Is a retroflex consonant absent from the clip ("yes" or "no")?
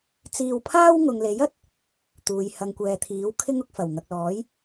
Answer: yes